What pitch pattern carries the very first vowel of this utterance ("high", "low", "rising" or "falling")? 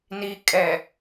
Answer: low